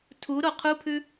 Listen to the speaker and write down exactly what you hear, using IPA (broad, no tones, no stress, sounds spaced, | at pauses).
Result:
tʰ u ɾ o qʰ u pʰ ʉ